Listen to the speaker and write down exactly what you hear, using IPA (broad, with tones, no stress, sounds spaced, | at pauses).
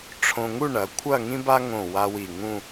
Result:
ʈ͡ʂʰ õ˧ ŋ u˥˧ ɳ ɐ˩˧ kʷʰ ɐ˥˧ ŋ ĩ˥ b a˥ ŋ õ˧˩ w a˧ w i˧˩ ŋ ũ˥˧